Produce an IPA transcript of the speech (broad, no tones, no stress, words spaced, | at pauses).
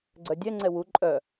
ɡ͡ǀœdʲɛ ŋ͡ǀɛwu ǃʼœ